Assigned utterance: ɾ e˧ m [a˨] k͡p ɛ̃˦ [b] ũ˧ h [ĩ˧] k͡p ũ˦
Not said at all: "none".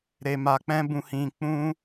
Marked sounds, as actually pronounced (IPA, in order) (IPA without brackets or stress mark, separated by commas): a˧, b, ĩ˧